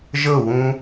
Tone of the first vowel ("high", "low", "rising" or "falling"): falling